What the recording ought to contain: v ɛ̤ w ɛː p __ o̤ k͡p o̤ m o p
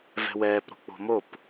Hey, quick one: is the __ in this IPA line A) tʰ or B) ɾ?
B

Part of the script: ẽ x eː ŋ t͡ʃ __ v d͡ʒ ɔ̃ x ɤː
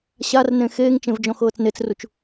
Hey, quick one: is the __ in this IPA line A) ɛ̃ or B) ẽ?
B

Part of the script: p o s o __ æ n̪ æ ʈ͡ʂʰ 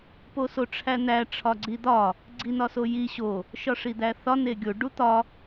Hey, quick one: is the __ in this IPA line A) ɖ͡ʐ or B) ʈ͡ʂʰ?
B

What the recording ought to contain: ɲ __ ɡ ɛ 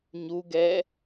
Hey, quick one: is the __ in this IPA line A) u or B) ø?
A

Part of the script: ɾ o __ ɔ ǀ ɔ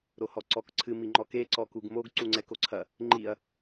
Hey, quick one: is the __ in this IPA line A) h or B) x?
A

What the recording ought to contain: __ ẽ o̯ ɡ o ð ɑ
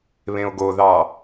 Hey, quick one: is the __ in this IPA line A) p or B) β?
B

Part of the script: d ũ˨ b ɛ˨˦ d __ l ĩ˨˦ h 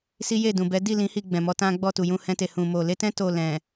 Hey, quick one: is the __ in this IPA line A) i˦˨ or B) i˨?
A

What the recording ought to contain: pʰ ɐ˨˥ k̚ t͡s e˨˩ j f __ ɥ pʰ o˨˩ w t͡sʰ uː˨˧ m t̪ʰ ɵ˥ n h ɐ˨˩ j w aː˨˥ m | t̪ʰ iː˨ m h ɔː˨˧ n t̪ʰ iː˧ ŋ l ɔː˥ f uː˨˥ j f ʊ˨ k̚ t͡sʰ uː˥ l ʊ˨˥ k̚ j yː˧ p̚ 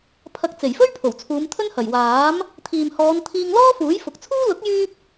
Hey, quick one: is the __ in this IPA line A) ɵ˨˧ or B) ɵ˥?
B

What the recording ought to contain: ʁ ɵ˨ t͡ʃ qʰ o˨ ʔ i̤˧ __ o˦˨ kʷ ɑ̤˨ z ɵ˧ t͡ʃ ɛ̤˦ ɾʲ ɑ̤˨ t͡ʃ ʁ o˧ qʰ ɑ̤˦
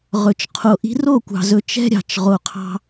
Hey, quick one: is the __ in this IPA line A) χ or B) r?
B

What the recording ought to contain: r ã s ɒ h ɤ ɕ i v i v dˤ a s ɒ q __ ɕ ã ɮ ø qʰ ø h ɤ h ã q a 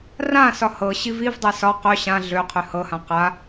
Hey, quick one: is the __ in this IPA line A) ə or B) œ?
B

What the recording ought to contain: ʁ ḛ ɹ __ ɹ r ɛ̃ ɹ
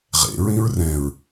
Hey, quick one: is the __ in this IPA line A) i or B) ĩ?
B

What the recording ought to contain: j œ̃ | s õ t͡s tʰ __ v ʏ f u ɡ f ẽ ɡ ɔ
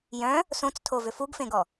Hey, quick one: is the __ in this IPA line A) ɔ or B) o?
B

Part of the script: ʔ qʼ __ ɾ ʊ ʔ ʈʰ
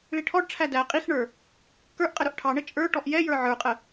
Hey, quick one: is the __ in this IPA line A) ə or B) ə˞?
A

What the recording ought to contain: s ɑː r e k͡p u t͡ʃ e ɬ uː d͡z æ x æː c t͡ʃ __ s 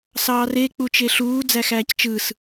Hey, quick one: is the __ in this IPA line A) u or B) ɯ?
B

